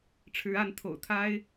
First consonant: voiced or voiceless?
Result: voiceless